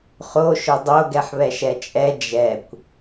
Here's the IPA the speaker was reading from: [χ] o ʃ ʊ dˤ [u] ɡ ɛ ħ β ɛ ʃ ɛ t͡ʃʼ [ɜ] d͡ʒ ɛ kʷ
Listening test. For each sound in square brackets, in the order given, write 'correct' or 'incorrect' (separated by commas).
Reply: correct, incorrect, incorrect